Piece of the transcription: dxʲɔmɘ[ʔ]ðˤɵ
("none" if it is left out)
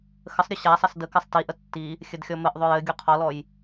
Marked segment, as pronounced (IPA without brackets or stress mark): ʔ